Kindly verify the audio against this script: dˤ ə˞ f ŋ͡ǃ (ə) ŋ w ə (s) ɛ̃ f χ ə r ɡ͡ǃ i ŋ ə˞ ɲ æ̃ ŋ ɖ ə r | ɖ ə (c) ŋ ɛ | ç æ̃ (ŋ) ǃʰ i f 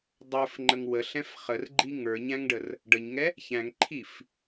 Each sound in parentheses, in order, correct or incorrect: correct, incorrect, incorrect, correct

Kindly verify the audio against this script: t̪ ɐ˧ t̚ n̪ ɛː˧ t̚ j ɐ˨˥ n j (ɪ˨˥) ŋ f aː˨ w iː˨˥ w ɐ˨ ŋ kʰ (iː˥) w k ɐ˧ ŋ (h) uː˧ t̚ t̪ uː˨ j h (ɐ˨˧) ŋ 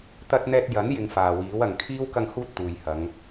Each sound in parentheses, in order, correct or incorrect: incorrect, correct, correct, correct

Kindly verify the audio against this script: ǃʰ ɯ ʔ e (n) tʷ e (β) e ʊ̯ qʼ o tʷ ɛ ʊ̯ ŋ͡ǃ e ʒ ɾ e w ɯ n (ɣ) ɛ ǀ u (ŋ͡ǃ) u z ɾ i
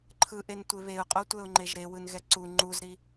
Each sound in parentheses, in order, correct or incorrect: correct, correct, correct, correct

